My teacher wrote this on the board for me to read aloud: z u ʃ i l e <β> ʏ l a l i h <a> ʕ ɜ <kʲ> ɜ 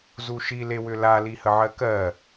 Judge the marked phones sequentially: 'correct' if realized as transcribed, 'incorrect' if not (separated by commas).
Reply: incorrect, incorrect, incorrect